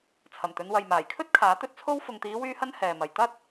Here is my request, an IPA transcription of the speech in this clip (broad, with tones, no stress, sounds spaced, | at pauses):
t͡sʰ ɐ˨˩ m t̪ ɵ˨˧ n w ɐ˨ j m aː˨˩ j kʰ ɵ˥ t̚ kʰ aː˨˥ t̪ ɵ˥ t̚ t͡sʰ o˥ w f ʊ˨ ŋ t̪ iː˨˧ w yː˧ h ɐ˧ n h ɛː˨ m ɐ˨ j t̪ ɐ˥ t̚